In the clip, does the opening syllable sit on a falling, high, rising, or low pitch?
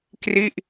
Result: falling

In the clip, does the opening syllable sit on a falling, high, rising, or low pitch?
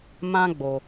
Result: high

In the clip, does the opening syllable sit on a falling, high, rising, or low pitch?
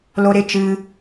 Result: high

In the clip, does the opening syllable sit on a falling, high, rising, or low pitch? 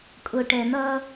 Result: low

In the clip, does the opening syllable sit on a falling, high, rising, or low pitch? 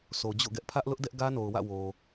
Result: low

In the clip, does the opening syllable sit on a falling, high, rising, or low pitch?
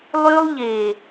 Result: high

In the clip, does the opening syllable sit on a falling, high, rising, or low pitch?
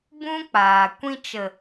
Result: high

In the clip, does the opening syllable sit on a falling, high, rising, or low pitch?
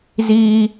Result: high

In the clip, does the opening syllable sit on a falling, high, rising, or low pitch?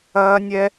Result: high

